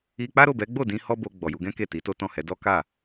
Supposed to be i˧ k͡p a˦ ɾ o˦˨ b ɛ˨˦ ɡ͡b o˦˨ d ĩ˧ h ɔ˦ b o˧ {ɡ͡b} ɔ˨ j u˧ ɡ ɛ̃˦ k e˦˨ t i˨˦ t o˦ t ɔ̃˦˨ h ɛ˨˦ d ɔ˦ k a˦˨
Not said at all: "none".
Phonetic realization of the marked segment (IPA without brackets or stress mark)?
ɡ͡b